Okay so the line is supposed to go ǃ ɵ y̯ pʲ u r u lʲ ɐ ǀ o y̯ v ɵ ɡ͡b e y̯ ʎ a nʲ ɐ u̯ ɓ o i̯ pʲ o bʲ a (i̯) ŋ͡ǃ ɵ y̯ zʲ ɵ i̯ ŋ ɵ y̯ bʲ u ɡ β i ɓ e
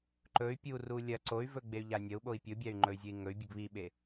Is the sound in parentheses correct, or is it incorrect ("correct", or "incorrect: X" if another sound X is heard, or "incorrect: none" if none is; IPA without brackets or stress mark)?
incorrect: y̯